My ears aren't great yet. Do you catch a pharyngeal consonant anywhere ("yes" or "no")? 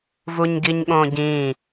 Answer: no